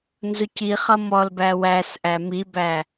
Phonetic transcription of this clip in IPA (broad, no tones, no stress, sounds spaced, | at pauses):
n z ʊ c i χ ʌ m ɔ l b æ w æ s ʔ æ m i b æ